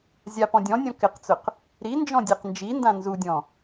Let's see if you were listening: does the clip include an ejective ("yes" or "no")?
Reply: no